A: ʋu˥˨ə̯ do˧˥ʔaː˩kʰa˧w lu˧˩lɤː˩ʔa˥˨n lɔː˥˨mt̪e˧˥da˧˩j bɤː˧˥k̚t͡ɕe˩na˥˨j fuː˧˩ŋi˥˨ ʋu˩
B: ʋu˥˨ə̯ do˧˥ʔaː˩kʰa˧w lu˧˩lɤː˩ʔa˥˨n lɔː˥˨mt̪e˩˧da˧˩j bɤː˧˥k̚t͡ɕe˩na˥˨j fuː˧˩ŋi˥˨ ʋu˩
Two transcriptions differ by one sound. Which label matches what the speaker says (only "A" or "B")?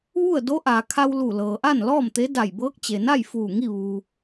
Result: A